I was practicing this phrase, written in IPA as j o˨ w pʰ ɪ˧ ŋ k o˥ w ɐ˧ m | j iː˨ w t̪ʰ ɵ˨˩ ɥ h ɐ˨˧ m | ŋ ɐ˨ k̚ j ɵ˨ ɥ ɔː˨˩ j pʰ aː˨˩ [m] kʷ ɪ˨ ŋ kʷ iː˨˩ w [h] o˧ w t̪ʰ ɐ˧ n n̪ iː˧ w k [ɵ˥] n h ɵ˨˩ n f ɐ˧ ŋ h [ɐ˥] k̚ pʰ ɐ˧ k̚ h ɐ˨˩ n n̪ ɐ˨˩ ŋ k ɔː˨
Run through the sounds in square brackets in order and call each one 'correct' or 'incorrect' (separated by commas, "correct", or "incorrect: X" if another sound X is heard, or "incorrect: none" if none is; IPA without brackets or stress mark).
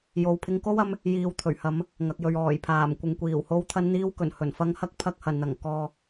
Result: correct, correct, incorrect: ɵ˨˩, correct